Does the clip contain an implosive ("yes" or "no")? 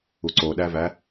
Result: yes